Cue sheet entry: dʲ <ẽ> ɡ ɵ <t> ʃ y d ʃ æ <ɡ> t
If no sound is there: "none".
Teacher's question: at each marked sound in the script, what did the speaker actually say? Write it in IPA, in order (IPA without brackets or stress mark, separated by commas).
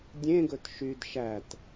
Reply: ẽ, t, none